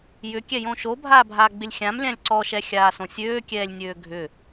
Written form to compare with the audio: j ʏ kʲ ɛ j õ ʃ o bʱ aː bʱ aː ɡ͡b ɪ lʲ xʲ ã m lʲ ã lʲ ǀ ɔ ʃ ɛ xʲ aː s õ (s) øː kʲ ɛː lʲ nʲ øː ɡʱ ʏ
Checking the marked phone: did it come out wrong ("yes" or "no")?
yes